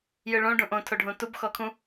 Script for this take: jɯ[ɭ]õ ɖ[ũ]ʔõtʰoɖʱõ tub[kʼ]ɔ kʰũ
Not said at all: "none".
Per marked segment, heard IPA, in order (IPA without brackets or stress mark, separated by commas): ɭ, ũ, x